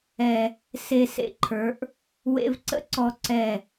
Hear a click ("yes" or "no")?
yes